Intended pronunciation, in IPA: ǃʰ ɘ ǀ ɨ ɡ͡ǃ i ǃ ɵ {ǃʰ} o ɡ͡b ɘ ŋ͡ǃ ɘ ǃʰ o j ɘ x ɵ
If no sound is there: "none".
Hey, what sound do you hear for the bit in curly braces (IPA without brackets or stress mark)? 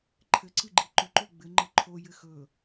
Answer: ǃ